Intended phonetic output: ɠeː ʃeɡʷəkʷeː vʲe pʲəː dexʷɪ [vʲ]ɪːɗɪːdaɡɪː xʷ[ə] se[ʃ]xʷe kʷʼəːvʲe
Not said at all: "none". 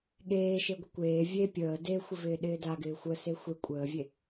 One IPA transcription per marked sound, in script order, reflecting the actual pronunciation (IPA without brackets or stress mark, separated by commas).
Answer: v, ə, none